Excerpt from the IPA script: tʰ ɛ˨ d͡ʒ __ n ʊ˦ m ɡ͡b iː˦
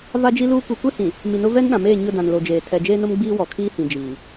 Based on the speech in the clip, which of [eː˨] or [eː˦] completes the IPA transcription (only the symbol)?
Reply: eː˦